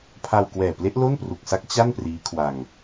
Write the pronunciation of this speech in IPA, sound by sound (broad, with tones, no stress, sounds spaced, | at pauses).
pʰ a˧ w k w ɛː˨˩ p l e˦˥ ʔ l o˥˩ n p r u˨˩ k̚ s a˦˥ k̚ t͡ɕ a˥˩ n p r iː˦˥ kʰ w a˧ ŋ